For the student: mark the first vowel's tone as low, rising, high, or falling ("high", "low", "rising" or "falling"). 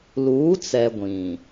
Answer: rising